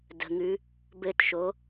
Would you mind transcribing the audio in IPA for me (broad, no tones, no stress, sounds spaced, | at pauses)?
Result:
d ə̤ ŋ ʉ | b ɘ t ʃ o